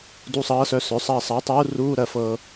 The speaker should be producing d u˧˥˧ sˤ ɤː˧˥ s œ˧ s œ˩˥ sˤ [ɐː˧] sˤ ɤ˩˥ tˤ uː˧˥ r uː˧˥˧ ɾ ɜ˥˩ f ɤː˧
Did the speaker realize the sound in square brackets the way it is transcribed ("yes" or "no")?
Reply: yes